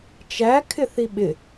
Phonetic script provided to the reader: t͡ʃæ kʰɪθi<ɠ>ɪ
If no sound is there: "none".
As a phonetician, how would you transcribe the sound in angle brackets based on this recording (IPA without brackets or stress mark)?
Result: ɓ